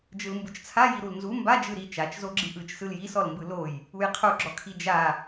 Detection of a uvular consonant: present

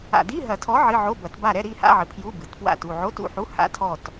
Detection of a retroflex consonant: absent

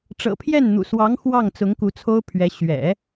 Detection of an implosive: absent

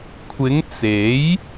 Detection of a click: absent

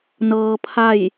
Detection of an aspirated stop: present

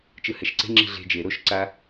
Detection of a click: present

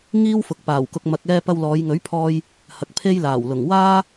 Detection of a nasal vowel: absent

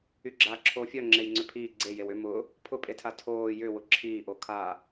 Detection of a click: present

